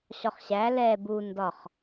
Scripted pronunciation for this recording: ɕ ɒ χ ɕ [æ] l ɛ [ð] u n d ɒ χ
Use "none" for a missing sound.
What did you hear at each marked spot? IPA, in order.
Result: æ, b

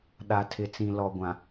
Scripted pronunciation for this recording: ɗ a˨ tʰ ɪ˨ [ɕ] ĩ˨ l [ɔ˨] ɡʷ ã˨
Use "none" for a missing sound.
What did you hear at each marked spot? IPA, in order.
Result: t͡s, ɔ˨

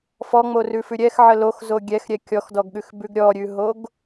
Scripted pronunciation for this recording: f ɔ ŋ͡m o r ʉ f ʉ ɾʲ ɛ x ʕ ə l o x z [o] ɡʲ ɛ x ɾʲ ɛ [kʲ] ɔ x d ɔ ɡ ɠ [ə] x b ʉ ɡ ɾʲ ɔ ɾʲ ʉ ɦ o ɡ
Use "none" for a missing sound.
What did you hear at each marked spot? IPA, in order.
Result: o, kʲ, ʉ

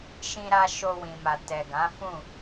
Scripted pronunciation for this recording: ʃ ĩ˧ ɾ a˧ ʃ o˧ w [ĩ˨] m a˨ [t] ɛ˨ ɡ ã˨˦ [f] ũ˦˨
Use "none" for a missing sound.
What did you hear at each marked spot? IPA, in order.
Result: ĩ˨, t, f

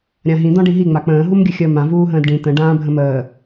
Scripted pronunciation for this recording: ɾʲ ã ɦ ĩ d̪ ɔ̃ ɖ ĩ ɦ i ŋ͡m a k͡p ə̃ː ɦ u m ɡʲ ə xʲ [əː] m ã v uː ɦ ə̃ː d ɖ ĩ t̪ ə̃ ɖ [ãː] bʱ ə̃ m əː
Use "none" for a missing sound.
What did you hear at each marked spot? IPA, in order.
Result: əː, ãː

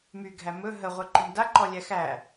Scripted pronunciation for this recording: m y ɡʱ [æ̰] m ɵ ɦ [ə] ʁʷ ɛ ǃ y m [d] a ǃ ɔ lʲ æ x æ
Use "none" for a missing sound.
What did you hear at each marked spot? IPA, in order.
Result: æ, ə, d

